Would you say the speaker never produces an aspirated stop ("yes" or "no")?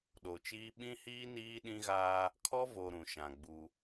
no